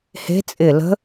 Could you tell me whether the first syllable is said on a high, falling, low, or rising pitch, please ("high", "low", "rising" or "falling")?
rising